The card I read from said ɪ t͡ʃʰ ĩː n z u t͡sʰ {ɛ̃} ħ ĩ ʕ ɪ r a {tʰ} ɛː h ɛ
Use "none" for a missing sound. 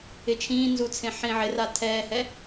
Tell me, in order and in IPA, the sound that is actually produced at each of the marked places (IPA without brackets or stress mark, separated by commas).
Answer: ẽ, tʰ